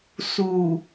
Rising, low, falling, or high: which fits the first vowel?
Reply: low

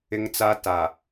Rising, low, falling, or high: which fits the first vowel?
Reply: high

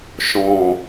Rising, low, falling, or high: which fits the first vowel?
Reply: low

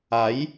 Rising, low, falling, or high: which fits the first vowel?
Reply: rising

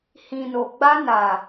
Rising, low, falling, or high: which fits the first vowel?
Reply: low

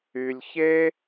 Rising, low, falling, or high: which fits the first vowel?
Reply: low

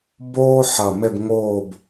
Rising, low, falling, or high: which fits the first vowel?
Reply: high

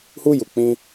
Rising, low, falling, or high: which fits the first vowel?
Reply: high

